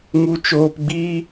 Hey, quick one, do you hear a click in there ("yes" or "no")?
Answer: no